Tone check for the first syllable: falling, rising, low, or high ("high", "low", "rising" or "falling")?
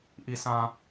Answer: low